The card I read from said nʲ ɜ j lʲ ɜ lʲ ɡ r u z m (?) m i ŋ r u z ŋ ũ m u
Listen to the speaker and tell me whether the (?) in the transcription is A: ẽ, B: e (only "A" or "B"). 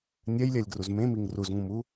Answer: A